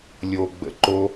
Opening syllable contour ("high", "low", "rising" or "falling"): low